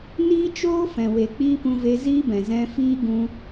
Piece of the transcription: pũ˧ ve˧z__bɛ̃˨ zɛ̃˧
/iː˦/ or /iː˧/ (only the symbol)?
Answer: iː˦